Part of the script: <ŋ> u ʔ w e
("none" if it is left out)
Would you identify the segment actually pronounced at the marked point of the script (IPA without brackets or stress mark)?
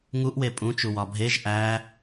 ŋ